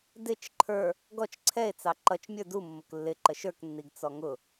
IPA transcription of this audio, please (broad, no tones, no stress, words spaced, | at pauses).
dɪt͡ʃ ǃʰə˞ | ɡɔt͡ʃ ǀʰɛe̯t͡sɑ ǃʌt͡ʃmʲə˞ du mːʊklːɪ ǃəʃə˞knːiɡ t͡sɔŋʊ